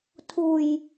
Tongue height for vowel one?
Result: high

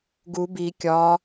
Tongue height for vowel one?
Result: high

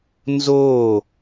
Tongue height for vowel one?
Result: mid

